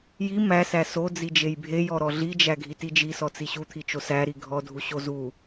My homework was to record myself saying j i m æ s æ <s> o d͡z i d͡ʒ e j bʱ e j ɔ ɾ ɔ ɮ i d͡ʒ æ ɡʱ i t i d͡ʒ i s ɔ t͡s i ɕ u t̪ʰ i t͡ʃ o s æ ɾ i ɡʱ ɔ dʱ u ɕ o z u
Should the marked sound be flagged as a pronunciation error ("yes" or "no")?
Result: no